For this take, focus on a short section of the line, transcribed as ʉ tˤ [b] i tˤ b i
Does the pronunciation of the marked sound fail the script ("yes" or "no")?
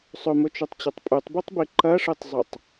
no